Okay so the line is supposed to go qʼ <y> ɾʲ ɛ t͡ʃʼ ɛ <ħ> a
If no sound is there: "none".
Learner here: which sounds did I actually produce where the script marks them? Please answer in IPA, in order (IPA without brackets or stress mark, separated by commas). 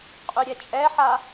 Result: y, ħ